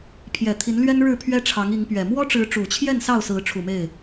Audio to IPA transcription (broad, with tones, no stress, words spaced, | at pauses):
pʰjɛ˨˩t̪ʰi˨˦nlɥɛ˦n ɻɻ̩˥˨pʰɥɛ˦ʈ͡ʂʰɑ˨˦ŋi˨˦ŋ pɥɛ˨˩ mwɔ˦ʈ͡ʂɻ̩˨˦ ʈ͡ʂu˨˩t͡ɕʰjɛ˥˨n sɑ˥˨ʊ̯sɹ̩˨˦ʈ͡ʂʰu˨˩ me˥˨ɪ̯